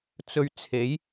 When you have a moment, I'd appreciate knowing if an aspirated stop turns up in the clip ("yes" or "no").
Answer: yes